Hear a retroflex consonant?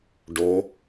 yes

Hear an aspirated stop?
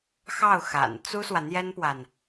no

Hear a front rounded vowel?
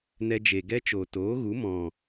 no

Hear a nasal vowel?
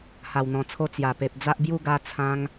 yes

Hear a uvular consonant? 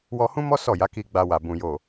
no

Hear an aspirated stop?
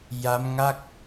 no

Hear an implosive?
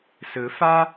no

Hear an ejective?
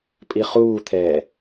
yes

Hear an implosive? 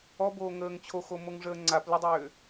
no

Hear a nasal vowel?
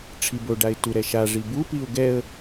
no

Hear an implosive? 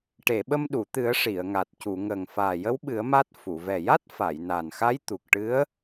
yes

